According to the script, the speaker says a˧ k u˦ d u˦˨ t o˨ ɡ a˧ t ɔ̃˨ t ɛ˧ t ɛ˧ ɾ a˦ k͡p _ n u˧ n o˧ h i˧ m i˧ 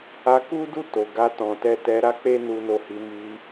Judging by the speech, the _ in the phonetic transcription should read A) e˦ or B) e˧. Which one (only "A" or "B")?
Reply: A